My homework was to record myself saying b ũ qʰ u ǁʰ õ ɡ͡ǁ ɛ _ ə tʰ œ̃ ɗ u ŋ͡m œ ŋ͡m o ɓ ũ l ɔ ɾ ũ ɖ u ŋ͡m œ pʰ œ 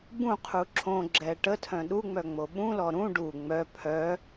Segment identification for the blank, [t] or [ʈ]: ʈ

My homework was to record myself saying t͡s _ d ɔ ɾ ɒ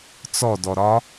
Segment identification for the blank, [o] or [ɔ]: ɔ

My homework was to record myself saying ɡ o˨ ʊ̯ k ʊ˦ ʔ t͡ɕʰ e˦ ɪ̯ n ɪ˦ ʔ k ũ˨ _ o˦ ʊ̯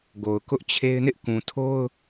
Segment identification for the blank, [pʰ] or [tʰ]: tʰ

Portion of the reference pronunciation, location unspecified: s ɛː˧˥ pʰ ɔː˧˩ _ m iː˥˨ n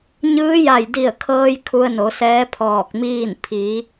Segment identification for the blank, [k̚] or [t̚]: k̚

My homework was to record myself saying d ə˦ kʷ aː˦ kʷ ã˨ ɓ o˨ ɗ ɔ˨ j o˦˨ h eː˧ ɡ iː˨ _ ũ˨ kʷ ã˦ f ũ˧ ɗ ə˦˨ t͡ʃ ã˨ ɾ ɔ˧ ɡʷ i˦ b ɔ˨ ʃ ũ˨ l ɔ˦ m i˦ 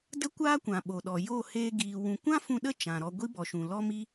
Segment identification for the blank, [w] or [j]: w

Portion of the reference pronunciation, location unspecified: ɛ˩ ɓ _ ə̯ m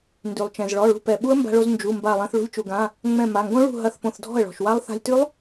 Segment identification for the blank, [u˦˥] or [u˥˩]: u˦˥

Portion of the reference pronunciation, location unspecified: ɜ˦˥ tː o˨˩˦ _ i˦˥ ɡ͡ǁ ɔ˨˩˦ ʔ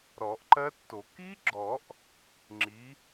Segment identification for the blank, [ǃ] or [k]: k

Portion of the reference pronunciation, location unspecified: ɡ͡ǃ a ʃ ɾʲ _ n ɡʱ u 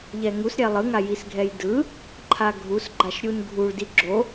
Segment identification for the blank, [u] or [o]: u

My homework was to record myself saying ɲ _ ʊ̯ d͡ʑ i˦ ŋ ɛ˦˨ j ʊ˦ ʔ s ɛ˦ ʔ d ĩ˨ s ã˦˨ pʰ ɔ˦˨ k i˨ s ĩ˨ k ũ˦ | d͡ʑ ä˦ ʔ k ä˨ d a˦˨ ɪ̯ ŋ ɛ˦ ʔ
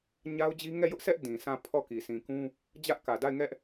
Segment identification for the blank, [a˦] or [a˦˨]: a˦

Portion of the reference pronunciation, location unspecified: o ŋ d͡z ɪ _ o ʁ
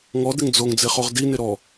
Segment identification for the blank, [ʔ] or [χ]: χ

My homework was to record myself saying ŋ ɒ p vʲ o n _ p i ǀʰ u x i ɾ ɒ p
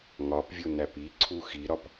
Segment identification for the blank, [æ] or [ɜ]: æ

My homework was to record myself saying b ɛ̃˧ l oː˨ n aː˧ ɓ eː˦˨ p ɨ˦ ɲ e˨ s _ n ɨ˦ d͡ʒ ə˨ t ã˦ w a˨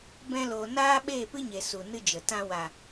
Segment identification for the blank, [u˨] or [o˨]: u˨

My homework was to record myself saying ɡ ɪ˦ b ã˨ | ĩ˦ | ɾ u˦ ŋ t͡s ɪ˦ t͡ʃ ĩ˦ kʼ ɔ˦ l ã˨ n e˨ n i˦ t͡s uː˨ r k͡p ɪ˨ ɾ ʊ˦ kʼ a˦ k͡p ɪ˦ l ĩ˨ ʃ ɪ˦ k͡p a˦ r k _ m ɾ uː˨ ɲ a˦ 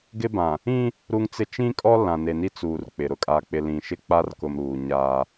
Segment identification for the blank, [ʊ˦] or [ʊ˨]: ʊ˨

